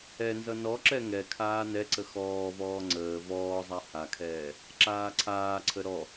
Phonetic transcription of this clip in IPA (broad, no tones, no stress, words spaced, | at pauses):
ɛnzʌ nɔǁɛ ŋɛkʰaː nɛǀə xɔːvɔː ŋ͡ǀəː vɔːzˤa hakʰɛː | ǁaːǀʰaːǀʰə ɾɔ